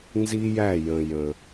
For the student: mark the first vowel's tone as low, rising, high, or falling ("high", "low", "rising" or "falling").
high